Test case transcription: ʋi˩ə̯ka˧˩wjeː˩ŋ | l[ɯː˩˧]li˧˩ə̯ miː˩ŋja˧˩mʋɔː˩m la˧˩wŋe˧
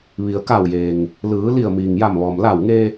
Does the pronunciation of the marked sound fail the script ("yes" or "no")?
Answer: no